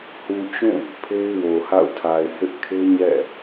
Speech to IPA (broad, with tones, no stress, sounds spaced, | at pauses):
h u˨ t͡ɕ ũ˦˨ | pʰ e˦ ɪ̯ w o˨ h a̰˦˨ ʊ̯ tʰ a˨ ɪ̯ h ɪ˦ ʔ kʰ e˦ ɲ ɛ̰˦˨